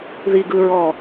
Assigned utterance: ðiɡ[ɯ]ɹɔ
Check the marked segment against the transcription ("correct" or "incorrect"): correct